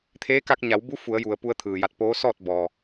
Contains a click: no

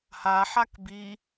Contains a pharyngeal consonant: yes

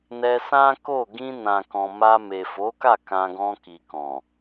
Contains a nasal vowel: yes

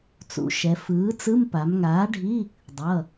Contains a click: no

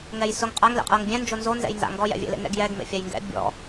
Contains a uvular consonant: yes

